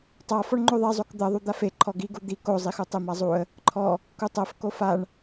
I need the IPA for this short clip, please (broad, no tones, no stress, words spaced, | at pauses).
tˤafɔɳ ŋ͡ǃoðˤezˤok d̪ɜðˤu d̪afe ǃʰɔɡiɡu d̪i kozˤixu tˤemazˤuə̯ | ǃʰɔ | kutˤɜf kofaɳ